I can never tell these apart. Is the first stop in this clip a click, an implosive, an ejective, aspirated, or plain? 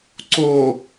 click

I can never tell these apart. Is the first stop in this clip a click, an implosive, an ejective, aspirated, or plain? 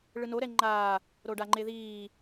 click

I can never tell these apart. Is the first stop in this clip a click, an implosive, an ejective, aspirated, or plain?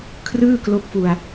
aspirated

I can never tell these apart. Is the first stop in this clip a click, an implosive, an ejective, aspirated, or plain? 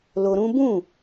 plain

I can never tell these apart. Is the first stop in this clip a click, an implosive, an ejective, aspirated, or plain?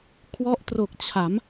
aspirated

